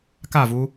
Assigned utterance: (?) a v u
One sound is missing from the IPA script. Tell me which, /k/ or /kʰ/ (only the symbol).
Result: k